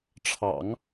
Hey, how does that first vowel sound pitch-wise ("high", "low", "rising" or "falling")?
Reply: low